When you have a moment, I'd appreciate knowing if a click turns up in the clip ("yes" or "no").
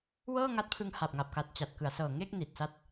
no